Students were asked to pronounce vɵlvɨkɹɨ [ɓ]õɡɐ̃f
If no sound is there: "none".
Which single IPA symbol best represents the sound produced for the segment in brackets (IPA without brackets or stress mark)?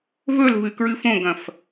f